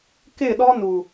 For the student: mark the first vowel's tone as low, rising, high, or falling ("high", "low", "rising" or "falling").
falling